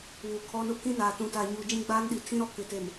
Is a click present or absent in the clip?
absent